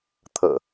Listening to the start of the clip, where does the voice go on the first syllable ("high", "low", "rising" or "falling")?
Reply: low